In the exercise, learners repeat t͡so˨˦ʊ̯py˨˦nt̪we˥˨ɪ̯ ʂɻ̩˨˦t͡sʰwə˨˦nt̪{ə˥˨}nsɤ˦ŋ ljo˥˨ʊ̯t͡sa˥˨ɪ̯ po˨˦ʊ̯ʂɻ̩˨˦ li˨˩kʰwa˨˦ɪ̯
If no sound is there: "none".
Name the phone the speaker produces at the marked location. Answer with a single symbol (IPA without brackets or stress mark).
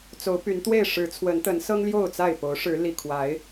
ə˨˦